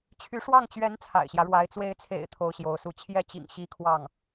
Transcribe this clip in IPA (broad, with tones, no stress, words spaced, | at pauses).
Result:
t͡ɕʰy˧˥ʂwɑ˥˩ŋt͡ɕɥɛ˧˥n t͡sʰa̰˨˩ɪ̯ɕjä˦ɻwa˧˥ɪ̯ t͡swe˧˥ɪ̯t͡sʰḛ˨˩ɪ̯ t̪ʰo˥ʊ̯ɕjo˧˥ʊ̯su˥˧ t͡ɕʰjɛ˥˩t͡ɕḭ˨˩ŋ ɕi˥ kʰwɑ˥˩ŋ